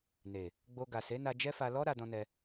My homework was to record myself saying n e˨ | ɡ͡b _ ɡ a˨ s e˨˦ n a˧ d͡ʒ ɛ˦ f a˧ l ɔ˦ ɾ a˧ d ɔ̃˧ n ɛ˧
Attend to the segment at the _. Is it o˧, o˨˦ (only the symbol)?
o˧